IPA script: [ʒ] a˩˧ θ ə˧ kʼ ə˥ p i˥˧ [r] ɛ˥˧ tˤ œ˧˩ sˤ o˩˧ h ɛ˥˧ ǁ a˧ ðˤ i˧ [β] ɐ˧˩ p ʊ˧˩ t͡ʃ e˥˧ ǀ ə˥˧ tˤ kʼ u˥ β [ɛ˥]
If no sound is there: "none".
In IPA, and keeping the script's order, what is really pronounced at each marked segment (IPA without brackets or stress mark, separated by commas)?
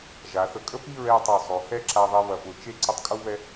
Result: ʒ, ɹ, β, ɛ˥